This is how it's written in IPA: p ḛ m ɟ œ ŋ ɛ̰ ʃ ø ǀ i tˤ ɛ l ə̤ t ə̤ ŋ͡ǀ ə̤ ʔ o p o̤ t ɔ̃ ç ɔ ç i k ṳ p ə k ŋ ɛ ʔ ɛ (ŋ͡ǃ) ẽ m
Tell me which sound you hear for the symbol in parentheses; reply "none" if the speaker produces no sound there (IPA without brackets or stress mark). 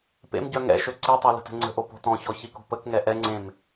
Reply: ŋ͡ǀ